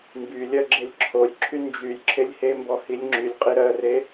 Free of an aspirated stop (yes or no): no